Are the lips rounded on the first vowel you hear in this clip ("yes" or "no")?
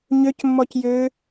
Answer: yes